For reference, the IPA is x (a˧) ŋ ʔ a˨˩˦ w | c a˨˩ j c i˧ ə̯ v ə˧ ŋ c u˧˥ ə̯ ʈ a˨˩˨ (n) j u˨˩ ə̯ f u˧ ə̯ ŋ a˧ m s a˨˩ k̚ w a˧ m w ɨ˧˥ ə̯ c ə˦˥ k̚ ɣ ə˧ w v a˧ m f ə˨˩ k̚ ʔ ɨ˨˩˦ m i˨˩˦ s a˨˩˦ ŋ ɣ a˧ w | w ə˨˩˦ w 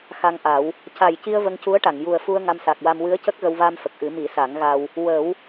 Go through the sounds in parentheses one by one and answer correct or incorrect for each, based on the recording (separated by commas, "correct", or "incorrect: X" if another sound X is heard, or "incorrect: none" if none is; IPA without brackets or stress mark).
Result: correct, incorrect: ŋ